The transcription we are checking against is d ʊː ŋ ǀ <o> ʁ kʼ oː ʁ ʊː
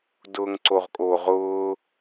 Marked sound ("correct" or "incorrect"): correct